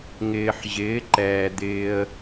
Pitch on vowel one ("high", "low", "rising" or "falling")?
low